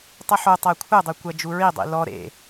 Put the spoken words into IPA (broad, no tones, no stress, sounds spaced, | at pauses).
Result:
tˤ ɨ ħ o tˤ æ kʷʰ ɘ dˤ ɨ kʷ æ d͡ʒ u ɹ i dˤ ḭ l ɔ ɾ ḛ